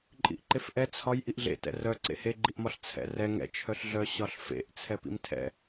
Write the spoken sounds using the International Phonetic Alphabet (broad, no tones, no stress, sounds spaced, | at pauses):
ǃʼ ḭ ʔ ǃ e f ʔ ɛ t͡sʰ ɒ j ʔ i ʔ ɮ ḛ t ɛ̰ r œ ǀ ḛ h e ɡ͡ǃ i ʔ m ɒ ɬ t͡sʰ ɛ̰ r ɛ ŋ ɛ̰ t͡ʃʰ œ ɬ ɮ œ ɕ ɒ ɬ f ḛ ʔ t͡sʰ ɛ p ḭ m tʰ ɛ̰